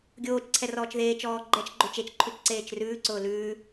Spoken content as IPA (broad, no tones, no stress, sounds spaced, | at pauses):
ɡʲ oː t͡ʃ ǀʰ ɛ r ɔː t͡ʃ ð eː t͡ʃ ɔː ɡ͡ǃ ɛ t͡ʃ ɡ͡ǃ ɵ t͡ʃ e t͡ʃ ǃʰ ʉ t͡ʃ ǀ eː t͡ʃ r ʉː ǀ ʊː l ʉː